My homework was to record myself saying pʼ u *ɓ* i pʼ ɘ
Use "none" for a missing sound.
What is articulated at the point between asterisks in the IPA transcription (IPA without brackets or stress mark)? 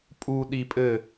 ɗ